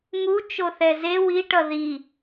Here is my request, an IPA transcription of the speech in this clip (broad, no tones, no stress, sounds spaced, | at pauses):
ŋ u t͡ʃ o θ ɛ z e w i ʈ ʌ ð i